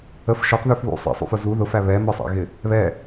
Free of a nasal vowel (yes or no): yes